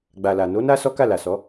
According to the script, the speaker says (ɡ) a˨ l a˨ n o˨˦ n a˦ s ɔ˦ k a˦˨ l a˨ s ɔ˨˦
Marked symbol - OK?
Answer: no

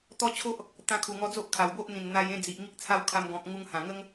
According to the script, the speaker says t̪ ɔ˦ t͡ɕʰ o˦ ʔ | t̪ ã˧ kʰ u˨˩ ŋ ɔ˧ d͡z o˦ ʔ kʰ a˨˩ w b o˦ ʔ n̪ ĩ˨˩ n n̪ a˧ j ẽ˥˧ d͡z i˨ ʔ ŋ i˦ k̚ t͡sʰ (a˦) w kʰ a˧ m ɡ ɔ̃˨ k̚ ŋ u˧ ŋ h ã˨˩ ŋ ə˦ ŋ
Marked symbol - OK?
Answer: yes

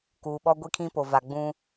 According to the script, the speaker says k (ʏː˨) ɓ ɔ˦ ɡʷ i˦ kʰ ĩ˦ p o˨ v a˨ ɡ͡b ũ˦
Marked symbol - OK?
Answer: no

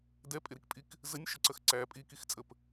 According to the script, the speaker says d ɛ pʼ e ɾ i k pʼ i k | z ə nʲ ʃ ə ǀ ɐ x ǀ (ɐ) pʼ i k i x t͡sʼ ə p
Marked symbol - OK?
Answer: no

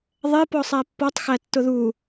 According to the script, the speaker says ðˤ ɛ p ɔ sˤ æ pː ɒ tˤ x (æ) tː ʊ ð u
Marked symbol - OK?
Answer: yes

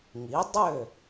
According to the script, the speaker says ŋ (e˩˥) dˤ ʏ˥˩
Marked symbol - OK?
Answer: no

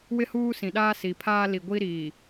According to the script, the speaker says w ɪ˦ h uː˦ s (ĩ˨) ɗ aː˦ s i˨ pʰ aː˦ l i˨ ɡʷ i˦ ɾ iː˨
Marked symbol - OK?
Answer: yes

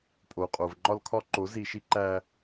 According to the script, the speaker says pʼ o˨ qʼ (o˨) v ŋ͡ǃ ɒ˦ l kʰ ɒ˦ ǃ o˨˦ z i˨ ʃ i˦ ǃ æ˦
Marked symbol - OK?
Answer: yes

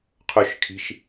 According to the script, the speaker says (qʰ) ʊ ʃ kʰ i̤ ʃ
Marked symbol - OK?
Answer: yes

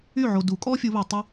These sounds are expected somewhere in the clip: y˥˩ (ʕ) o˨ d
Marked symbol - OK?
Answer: yes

